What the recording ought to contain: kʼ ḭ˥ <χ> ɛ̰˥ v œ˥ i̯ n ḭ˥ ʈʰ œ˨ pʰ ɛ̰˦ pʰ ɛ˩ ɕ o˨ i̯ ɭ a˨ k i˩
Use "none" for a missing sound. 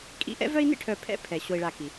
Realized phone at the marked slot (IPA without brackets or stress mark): ʔ